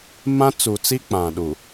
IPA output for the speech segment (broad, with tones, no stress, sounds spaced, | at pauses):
m ã˦ t͡s u˨ t͡s i˦ k͡p ã˨ ɗ u˨